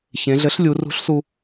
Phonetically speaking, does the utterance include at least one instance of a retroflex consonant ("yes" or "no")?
no